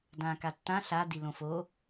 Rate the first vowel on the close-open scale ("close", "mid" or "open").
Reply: open